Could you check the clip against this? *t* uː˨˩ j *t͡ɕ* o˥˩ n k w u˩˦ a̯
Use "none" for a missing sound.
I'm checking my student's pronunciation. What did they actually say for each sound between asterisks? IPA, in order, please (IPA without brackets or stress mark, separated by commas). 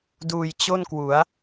d, t͡ɕ